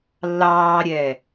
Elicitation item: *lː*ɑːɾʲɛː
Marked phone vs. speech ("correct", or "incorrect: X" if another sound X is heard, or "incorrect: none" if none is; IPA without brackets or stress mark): correct